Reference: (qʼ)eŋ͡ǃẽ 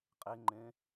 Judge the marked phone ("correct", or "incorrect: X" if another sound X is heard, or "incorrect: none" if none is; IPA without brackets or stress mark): correct